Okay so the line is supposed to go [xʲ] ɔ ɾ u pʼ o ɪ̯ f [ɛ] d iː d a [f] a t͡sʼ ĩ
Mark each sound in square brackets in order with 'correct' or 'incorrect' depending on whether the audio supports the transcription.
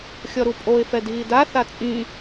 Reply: correct, correct, incorrect

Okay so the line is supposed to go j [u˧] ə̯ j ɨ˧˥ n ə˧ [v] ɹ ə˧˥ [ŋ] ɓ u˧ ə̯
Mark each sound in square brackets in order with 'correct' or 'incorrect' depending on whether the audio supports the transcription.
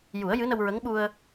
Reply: incorrect, incorrect, correct

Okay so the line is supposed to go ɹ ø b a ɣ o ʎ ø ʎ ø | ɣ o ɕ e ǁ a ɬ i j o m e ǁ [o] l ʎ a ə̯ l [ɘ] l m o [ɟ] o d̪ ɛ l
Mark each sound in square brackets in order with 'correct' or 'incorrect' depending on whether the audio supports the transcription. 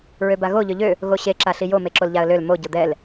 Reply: correct, incorrect, correct

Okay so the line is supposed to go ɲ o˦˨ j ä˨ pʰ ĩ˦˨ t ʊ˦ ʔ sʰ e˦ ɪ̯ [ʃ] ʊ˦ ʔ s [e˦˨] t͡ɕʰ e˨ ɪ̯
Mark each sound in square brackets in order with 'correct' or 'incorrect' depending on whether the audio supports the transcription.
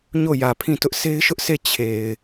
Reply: correct, correct

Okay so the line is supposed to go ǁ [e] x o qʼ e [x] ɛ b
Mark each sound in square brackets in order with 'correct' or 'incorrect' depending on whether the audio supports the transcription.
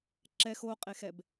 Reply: incorrect, correct

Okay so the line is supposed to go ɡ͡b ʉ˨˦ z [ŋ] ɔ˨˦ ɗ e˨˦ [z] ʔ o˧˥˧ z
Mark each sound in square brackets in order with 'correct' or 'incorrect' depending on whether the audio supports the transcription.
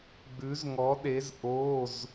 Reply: correct, correct

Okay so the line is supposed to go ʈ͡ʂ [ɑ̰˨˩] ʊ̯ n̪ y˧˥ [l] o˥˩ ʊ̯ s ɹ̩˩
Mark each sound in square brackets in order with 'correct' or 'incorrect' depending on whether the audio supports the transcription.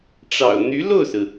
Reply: correct, correct

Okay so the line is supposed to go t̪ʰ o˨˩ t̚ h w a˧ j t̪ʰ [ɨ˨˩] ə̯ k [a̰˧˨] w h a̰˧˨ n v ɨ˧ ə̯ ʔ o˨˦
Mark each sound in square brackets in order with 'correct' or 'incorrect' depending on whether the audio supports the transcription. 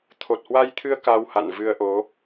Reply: incorrect, incorrect

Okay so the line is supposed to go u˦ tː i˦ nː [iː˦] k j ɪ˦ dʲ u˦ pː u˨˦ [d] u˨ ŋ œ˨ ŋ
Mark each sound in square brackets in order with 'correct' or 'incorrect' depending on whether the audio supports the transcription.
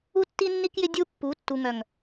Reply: incorrect, incorrect

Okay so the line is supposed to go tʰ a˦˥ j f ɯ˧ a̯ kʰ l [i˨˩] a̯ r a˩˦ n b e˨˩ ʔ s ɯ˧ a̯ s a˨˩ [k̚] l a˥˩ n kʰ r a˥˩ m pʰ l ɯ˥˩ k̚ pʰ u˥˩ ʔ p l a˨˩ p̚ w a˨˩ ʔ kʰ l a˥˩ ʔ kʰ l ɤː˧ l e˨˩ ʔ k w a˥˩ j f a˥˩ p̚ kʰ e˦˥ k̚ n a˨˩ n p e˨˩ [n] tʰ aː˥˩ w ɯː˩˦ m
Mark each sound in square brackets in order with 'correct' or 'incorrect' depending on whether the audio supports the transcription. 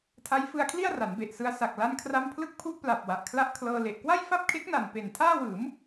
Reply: incorrect, correct, correct

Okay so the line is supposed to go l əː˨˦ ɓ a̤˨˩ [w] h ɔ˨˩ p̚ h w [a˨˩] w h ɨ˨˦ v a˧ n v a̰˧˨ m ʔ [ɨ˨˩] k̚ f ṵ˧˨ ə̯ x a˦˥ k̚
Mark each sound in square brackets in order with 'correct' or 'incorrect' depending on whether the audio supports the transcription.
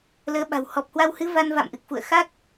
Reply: correct, incorrect, correct

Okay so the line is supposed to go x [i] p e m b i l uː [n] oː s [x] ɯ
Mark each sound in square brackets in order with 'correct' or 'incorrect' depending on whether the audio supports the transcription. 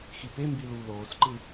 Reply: correct, incorrect, incorrect

